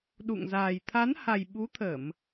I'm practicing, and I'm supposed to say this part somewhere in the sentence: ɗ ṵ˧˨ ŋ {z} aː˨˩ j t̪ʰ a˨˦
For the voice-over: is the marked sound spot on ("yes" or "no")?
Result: yes